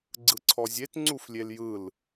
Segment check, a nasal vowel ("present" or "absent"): absent